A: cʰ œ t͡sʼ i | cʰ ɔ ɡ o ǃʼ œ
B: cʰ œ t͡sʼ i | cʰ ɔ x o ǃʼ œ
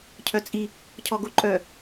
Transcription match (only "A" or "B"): A